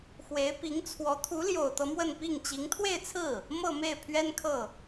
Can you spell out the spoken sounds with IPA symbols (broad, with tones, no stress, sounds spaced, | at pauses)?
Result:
x w e˧˥ ɪ̯ p i˧˥ ŋ t͡sʰ w ɔ˧˥ t̪ʰ u˧˥ l j o˨˩ ʊ̯ t̪ ɤ˦ m w ə˥˧ n p i˥˩ ŋ t͡ɕ i˧˥ ŋ t̪ʰ w e˥˧ ɪ̯ t͡sʰ ɹ̩˥˩ | m ɤ˥˧ m e˥˩ ɪ̯ pʰ ɥ ɛ˥ n kʰ ɤ˥˩